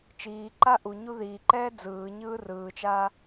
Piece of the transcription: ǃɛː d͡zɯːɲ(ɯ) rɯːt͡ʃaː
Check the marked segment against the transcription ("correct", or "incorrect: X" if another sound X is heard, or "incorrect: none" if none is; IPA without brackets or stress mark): incorrect: ɯː